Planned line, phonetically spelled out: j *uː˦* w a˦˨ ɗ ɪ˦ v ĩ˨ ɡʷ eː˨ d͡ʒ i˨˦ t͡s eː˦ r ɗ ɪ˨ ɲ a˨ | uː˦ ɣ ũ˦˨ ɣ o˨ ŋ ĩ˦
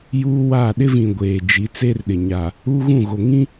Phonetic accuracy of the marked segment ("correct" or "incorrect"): correct